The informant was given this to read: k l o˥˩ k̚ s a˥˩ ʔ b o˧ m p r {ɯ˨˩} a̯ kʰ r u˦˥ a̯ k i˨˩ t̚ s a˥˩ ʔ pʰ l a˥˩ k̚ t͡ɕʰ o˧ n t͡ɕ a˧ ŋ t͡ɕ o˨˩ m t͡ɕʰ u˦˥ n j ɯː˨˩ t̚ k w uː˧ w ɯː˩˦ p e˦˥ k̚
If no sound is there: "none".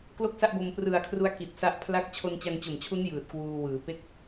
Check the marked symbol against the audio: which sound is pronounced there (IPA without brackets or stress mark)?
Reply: ɯ˨˩